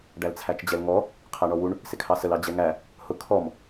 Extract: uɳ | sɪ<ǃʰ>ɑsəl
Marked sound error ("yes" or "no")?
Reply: yes